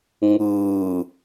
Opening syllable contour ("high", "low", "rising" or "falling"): low